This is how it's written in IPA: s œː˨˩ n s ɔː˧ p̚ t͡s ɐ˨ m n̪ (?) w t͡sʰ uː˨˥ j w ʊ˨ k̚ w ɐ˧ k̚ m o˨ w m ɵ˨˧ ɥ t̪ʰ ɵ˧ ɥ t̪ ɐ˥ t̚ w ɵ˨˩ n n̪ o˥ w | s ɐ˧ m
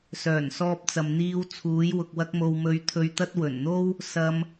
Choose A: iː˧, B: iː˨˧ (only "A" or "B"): A